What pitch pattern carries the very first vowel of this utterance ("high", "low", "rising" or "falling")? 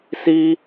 high